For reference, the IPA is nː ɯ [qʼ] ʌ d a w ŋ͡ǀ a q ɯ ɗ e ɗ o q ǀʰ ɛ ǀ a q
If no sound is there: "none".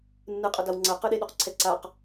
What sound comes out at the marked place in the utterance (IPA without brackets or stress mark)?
qʼ